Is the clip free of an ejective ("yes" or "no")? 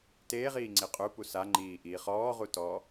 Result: no